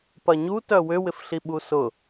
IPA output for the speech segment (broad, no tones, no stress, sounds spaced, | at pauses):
p ɐ ɲ u t œ w ʏ w ɪ f ɬ i ɓ u s ʊ